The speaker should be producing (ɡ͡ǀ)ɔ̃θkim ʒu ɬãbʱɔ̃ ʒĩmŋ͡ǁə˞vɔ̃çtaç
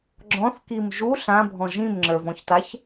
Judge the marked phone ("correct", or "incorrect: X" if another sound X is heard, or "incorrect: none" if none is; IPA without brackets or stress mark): incorrect: ɡ͡ǁ